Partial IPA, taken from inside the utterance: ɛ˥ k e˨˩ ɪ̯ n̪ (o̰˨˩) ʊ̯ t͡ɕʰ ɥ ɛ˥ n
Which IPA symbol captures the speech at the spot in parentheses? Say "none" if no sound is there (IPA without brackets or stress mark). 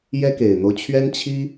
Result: o˦